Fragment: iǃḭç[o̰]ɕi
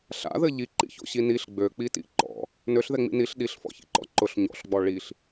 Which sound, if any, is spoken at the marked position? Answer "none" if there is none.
o̰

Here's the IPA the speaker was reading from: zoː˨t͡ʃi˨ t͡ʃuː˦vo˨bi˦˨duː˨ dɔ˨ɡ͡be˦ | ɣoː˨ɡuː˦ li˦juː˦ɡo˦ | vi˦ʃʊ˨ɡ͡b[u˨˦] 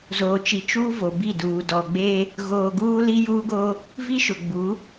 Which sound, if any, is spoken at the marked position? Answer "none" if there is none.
u˨˦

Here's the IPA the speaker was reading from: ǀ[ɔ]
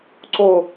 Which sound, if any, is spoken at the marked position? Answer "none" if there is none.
o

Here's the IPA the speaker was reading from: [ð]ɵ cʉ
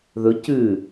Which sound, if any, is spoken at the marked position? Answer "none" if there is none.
ð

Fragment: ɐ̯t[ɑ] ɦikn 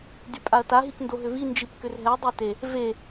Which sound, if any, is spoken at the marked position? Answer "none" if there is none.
a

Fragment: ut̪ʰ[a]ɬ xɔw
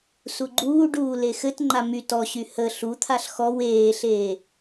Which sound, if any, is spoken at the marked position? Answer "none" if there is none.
a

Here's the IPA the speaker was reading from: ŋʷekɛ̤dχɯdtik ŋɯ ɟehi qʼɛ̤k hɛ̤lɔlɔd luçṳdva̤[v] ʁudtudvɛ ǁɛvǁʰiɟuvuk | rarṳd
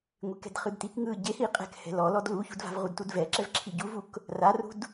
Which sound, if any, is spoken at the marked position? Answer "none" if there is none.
v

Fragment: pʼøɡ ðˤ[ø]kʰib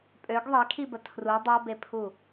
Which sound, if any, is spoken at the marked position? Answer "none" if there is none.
e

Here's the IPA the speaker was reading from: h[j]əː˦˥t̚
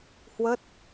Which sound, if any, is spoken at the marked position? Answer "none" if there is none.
w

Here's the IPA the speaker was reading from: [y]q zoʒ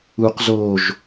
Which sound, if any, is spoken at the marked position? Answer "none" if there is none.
u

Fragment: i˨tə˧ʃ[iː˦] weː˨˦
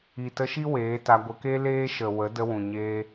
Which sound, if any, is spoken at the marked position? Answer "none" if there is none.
i˦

